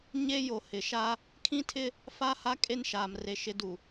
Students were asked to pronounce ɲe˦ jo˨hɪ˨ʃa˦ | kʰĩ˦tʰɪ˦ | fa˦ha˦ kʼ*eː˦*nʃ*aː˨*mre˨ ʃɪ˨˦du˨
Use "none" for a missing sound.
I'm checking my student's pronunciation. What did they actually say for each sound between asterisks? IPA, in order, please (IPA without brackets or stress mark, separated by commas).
e˦, aː˨